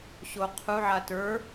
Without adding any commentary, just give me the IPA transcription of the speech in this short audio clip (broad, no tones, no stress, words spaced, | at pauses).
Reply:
ɕoqʰuʕa tə˞